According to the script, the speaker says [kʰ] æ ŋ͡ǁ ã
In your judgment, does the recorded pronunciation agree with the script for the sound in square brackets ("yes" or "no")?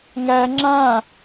no